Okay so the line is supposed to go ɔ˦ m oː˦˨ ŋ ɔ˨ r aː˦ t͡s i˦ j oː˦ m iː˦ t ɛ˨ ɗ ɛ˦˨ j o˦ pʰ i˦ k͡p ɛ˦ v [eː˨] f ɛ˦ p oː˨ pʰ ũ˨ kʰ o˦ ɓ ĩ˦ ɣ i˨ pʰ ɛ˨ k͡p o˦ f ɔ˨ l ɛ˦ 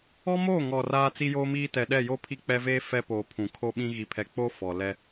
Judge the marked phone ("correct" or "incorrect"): incorrect